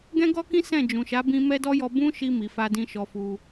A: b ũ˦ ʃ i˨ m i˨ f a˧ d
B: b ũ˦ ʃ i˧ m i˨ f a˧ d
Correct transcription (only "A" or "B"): B